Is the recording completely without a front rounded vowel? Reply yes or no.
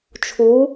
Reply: yes